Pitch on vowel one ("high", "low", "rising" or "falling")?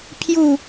falling